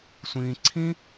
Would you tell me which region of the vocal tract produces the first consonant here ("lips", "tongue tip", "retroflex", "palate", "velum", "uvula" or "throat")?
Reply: tongue tip